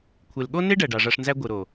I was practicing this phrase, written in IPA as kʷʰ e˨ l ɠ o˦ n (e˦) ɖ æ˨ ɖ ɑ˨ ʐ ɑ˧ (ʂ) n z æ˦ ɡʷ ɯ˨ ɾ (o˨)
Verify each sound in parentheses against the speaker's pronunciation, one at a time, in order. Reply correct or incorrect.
correct, correct, correct

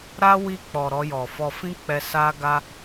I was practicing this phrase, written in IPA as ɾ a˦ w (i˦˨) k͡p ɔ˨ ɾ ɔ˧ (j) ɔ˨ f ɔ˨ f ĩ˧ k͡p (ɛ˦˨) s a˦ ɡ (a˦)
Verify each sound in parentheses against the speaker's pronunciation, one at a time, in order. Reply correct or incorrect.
incorrect: i˧, correct, incorrect: ɛ˧, correct

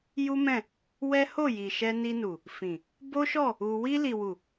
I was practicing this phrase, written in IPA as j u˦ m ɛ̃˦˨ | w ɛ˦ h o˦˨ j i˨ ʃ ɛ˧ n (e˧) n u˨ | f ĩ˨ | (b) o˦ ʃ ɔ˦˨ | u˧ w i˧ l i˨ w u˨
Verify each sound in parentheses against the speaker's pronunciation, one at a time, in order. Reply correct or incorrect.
incorrect: i˧, correct

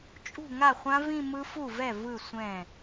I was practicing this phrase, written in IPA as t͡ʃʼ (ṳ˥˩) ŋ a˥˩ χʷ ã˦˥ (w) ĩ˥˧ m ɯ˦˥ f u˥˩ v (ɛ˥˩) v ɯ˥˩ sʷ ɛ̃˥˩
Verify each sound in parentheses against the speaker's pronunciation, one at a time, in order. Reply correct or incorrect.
correct, incorrect: v, correct

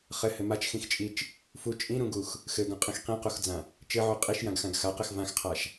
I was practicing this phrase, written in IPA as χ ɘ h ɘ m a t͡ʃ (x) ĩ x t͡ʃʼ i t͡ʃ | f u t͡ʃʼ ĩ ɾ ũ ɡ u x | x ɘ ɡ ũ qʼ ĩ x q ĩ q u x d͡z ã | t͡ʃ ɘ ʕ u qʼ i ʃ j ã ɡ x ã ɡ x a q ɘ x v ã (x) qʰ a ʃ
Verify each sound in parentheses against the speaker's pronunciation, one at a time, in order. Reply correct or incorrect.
correct, correct

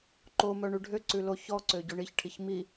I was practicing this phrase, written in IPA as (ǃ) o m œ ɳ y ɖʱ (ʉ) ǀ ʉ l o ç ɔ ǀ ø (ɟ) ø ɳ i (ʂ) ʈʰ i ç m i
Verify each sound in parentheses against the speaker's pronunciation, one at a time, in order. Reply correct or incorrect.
correct, incorrect: ø, correct, incorrect: ç

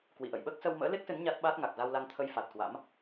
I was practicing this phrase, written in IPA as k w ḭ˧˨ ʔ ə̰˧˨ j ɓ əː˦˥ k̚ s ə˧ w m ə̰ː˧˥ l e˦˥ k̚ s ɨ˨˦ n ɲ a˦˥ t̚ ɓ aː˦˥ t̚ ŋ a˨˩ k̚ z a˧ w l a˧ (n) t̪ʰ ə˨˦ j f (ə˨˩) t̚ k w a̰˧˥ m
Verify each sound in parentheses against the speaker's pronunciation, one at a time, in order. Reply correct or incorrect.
incorrect: ŋ, incorrect: a˨˩

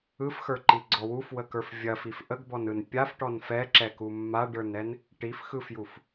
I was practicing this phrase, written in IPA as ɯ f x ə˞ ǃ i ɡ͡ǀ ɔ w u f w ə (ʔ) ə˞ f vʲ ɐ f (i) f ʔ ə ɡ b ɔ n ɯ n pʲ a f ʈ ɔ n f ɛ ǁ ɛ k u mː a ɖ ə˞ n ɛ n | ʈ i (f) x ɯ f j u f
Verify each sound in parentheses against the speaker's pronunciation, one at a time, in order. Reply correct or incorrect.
incorrect: k, correct, correct

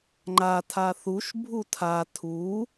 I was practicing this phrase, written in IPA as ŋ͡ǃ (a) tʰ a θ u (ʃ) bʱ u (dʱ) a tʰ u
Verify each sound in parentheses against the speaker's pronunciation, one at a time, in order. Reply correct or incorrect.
correct, correct, incorrect: tʰ

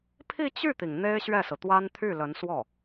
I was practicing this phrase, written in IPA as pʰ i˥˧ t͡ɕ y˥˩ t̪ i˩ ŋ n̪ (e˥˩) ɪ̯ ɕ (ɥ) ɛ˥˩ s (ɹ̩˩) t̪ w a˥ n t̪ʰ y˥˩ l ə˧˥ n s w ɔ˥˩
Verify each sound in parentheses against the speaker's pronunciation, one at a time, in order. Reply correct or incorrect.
incorrect: e˥, correct, correct

